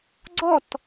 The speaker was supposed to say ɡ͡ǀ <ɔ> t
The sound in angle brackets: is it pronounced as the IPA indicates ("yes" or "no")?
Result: yes